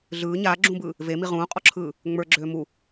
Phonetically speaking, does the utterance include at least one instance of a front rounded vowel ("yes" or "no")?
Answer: yes